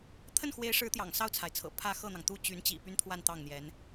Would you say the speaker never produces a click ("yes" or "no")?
yes